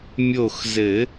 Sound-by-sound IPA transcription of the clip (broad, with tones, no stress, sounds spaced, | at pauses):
mʲ o˧˩ x z ɘ˨˩˦